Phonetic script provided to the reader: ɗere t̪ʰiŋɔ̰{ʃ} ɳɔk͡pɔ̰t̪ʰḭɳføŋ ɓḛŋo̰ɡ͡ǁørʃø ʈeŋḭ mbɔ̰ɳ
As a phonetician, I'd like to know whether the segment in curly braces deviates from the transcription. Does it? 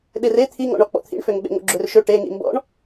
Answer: yes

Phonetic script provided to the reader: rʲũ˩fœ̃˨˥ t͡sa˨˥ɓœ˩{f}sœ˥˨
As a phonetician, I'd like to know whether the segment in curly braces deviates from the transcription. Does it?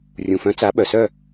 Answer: yes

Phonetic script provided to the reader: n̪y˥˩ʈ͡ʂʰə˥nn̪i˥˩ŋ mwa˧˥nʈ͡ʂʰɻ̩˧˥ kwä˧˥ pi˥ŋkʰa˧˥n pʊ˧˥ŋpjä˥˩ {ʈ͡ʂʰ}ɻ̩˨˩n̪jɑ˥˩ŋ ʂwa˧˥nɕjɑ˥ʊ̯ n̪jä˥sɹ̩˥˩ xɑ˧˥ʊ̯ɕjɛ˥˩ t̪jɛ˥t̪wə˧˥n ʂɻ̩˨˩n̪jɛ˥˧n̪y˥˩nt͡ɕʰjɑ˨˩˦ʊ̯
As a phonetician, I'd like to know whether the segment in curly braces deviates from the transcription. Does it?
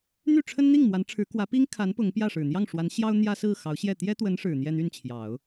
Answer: yes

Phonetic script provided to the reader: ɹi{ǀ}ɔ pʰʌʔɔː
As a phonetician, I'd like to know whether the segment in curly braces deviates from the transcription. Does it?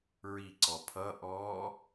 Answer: no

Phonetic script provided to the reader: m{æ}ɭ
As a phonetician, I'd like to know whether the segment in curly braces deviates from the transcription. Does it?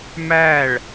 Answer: no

